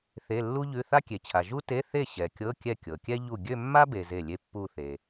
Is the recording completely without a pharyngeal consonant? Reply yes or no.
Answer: yes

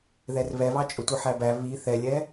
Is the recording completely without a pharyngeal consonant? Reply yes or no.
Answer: no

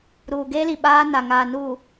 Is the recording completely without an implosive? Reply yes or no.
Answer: no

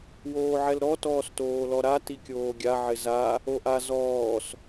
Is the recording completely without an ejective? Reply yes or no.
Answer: yes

